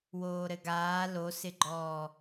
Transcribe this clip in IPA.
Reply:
w oː ɾ ɘ ɡ aː l o s ɪ ɡ͡ǃ ɔː

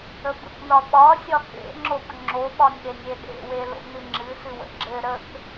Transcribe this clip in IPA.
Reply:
ə b ə̰ k n ɒ ɓ ɒ sʲ ɒ k ḛ ŋ͡ǁ o k ŋ͡ǁ o ɓ ɒ nʲ ɗ e nʲ e ɗ ḛ w e l o̰ n ɨ ŋ͡ǁ ɨ s ɨ w ə̰ ɡ͡ǁ ɘ ɾ ə k

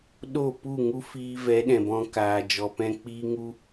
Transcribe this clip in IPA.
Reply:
ɗ o˦˨ p u˦˨ ŋ u˦ f iː˧ v ɛ˨˦ ɗ ɛ̃˨ b ɔ̃˧ k aː˨ d͡ʒ ɔ˨ p ɛ̃˧ k͡p iː˦ ŋ u˦

